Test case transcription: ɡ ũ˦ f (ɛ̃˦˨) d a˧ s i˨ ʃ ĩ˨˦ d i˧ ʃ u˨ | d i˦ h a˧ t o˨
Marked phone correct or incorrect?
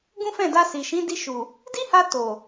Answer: correct